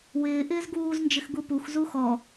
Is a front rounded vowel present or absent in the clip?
absent